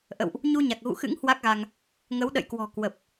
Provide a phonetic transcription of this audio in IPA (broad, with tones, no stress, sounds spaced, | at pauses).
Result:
ʔ ə̰˧˨ w ʔ | ɲ u˧ ɲ a˨˩ k̚ ɣ ṵ˧˨ x ɨ̰˧˥ ŋ h w a˦˥ k̚ ɣ a˧ ŋ | ŋ ə˨˦ w ɗ ə̰˧˨ j k w ɔ̤˨˩ k w ə˨˩ p̚